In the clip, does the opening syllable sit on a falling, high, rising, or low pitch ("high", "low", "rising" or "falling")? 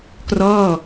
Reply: falling